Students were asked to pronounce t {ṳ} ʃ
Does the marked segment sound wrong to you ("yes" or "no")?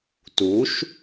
yes